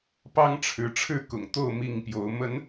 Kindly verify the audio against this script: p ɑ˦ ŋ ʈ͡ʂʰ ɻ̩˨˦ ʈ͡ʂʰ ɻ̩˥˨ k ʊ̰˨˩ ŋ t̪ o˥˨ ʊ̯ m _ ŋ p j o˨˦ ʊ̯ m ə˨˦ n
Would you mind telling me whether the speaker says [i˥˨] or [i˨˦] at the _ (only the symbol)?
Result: i˥˨